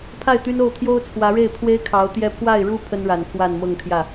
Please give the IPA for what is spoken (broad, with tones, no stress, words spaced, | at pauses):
pʰa˥˩ɪ̯ t̪y˥no˥˩ʊ̯ t̪ʰjo˥ʊ̯t͡sʰwä˧˥ɻe˥˩ɪ̯ pʰwe˥ɪ̯kʰɑ˧˥ʊ̯t̪jɛ˥˧ pʰwa˥˩ɪ̯ɻu˥ pʰə˥nɻa˨˩n pʰwa˥˧nmɤ˥˧ŋt̪ʰjä˥˩